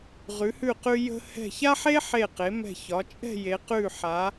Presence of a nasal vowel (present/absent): absent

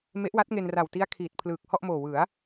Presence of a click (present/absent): absent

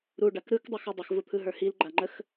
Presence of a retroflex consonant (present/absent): present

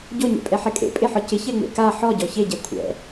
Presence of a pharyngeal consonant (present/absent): present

